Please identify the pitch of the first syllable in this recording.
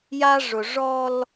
high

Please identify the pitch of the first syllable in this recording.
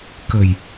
low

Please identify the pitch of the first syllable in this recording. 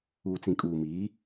low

